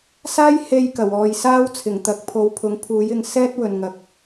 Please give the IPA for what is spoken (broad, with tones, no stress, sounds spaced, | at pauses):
s aː˥ j h e˧ j k ɐ˨˩ w ɔː˨˧ j s aː˥ w t͡sʰ ɪ˨˩ ŋ t̪ ɐ˨˥ k̚ pʰ o˨˥ w pʰ ʊ˨˥ ŋ pʰ uː˨˥ j ɪ˧ ŋ s ɛː˥ t̚ w ɵ˧ n ŋ ɐ˧ k̚